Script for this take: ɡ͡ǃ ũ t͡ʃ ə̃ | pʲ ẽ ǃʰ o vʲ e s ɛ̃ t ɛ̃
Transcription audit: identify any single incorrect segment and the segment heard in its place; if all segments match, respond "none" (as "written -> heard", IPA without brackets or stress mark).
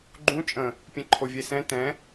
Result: t͡ʃ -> t͡ʃʼ